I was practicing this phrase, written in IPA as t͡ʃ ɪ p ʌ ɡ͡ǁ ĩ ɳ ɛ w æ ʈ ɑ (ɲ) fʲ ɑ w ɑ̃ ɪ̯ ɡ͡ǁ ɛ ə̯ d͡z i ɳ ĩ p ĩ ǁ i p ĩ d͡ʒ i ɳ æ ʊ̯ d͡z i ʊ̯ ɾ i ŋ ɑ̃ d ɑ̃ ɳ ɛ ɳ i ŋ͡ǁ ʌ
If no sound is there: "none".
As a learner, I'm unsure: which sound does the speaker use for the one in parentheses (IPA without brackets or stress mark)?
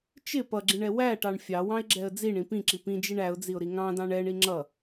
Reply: ɳ